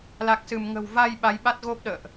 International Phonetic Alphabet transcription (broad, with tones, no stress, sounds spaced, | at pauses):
l a˨˩ k̚ s ɨ˧˩ m ŋ ə̤˨˩ w v a˧ j ɓ a˨˦ j ɓ a˦˥ t̚ ɣ o˦˥ p̚ ɗ ə̰ː˧˨ ʔ